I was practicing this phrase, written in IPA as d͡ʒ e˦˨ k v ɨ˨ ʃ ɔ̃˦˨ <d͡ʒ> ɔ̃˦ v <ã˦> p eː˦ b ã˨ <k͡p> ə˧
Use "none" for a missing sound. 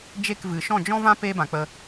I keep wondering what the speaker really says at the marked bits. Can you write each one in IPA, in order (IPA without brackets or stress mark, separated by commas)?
d͡ʒ, ã˦, k͡p